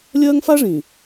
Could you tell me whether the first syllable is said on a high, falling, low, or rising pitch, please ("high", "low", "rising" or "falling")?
high